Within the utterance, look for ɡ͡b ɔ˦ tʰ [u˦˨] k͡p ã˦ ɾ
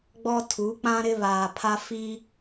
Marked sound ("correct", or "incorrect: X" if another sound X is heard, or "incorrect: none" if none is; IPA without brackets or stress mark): incorrect: u˨˦